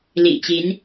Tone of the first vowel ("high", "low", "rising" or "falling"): low